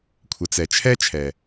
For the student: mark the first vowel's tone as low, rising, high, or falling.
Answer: low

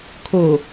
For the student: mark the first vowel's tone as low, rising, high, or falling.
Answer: low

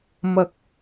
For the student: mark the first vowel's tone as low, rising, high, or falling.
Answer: rising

